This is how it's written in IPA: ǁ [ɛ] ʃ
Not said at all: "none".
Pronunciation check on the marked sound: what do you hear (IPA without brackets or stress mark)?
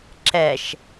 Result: ɛ